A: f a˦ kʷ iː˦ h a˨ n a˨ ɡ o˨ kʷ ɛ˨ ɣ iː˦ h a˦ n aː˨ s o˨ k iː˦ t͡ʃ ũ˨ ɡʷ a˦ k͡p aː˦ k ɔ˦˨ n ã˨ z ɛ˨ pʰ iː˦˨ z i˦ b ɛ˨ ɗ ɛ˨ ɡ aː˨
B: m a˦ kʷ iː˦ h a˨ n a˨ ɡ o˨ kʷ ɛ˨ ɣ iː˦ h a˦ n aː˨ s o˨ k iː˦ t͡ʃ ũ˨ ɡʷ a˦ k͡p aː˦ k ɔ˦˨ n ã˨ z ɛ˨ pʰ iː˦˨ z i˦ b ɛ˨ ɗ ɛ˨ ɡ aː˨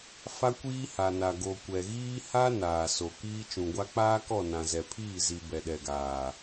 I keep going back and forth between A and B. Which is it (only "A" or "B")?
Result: A